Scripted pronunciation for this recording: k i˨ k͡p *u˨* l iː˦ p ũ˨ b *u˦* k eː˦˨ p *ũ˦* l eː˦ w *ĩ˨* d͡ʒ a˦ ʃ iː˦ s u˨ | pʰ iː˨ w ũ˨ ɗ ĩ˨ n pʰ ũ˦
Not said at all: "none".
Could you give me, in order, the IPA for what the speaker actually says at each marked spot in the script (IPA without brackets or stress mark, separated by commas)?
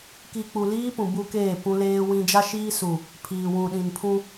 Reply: u˨, u˦, ũ˦, ĩ˦